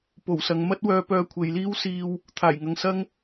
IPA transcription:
p o˨˩ w s ɐ˨ ŋ m ɐ˥ t̚ w œː˧ p œː˧ kʷʰ e˨ j l iː˥ w s iː˧ w | t̪ʰ aː˨˩ j ŋ ɐ˨ ŋ s ɐ˥ ŋ

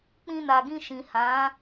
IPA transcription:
k͡p ĩ˧ n a˨ ɡ ĩ˧ ʃ ĩ˨ h ã˨˦

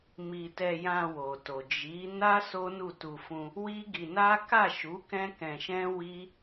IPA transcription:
m i˧ t ɛ˧ j ã˧ w o˨ t o˨ d͡ʒ i˨˦ n a˦ s o˦ n u˦˨ t u˧ f ũ˧ | w i˦ ɡ i˧ n a˦ k a˦˨ ʃ u˨˦ k ɛ̃˦ k ɛ̃˧ ʃ ɛ̃˦ w i˦

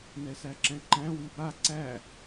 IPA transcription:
n ɛ s æ ǁ ɛ̃ ǃ æ̃ w i b a ǀ æ

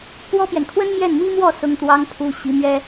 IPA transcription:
p w ɔ˥ p j ɛ˨ n kʰ w ə˥ n m j ɛ˥˩ n m i˥ m w ɔ˥˩ s ʊ˥ ŋ t̪ w ɑ˥ ŋ pʰ u˥ ɕ i˧˥ m ɥ ɛ˥

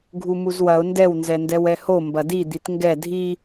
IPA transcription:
ɡʱ u m u z w ɐ ʊ̯ n d ɛ w n z ɛ n d ɛ w ɛ h o m b ɐ d i d̪ i t ŋ ɡ ɛ dʱ i

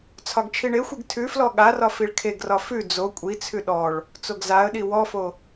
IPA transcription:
t͡sʰ ɒ ɡ t͡ʃʰ i ɳ e xʷ i ɡ tʰ ʉ f l ɔ ɠ a r ɒ f i ɭ kʰ e ɡ r ɒ f ʉ d͡z o kʷʼ i t͡sʰ ʉ ɗ ɔ ɭ | t͡s o ɡ z a ə̯ ɗ i w ɔ f o

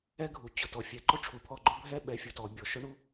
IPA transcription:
ɛ˦ ɡʱ u˨ t͡ɕ ʊ˨ t ɔ˨ fʲ ɛ˨ ǃ ʊ˦ ʈ͡ʂʰ u˨ pʰ ɔ˦˨ ɡ͡ǃ ʊ˦ bʱ ɛ˦ ɓ ɛ˨˦ fʲ ʊ˨ t ɔ˨ bʲ ɔ˨ ʃ ʊ˦ ɳ u˦

